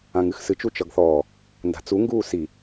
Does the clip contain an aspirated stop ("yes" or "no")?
no